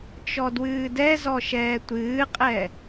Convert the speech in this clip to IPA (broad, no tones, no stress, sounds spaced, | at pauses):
t͡ʃ ɔ d w ɨː d ɛ z ɔ ʃ ɛː tʷ ɨː qʼ ɛ